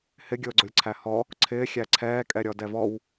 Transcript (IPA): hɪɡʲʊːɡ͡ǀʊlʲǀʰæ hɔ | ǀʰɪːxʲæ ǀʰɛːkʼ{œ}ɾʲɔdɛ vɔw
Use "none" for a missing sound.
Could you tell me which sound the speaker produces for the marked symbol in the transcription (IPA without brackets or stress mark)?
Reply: ɛ